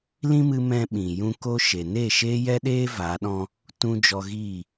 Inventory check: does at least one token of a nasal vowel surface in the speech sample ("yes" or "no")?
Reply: yes